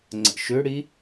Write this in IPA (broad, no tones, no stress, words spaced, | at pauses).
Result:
ŋ͡ǀə̰ʃʏɽi